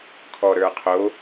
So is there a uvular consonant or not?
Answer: yes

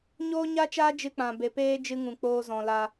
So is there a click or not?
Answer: no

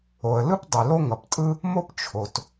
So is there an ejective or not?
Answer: yes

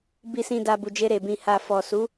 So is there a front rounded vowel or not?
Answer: no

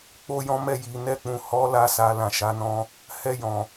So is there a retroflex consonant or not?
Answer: no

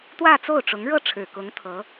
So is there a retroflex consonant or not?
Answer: yes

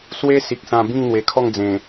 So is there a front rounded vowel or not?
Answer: no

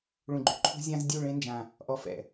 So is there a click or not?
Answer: yes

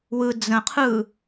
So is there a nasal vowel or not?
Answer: yes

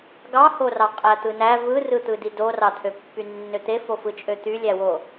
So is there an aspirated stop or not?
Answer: yes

